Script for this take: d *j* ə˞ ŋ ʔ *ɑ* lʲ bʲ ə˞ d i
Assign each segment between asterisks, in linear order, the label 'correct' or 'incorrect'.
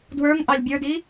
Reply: incorrect: w, correct

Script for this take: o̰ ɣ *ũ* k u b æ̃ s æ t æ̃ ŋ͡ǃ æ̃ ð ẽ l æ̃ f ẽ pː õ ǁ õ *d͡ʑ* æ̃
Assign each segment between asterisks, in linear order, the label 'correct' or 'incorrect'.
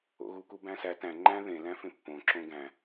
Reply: incorrect: u, incorrect: ɡ

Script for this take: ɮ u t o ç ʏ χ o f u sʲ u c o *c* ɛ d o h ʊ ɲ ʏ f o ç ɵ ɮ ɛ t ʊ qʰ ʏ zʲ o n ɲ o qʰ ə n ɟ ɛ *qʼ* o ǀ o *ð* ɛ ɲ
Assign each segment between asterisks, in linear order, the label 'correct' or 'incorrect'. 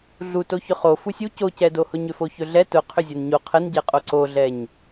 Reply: correct, correct, incorrect: ɮ

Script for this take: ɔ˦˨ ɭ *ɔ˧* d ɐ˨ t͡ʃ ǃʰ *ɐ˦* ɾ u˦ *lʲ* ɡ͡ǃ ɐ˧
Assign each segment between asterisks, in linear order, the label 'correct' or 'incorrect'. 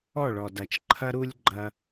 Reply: incorrect: ɔ˨, correct, correct

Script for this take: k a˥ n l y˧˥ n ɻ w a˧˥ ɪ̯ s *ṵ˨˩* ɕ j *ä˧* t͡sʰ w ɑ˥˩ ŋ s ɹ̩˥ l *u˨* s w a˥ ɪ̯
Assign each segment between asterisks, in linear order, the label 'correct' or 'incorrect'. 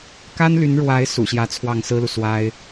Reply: correct, incorrect: ä˧˥, correct

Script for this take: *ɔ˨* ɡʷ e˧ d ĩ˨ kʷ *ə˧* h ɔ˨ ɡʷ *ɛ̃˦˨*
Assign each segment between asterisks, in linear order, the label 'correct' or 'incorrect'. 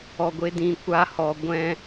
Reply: correct, incorrect: a˧, incorrect: ɛ̃˧

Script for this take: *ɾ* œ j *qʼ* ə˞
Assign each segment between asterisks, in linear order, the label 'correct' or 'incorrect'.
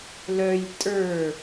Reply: incorrect: l, incorrect: tʼ

